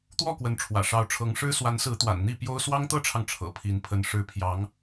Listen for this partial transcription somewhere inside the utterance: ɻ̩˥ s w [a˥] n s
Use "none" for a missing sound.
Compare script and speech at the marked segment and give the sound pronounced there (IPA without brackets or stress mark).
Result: a˧˥